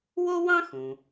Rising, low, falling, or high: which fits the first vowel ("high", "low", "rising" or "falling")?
high